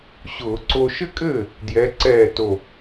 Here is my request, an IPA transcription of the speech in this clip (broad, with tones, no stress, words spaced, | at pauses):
ɕʊː˧˩˧ǀo˧ ʃɘ˥kʼɘː˥˩ | djɛ˨˥ǀɛː˥˩to˧˩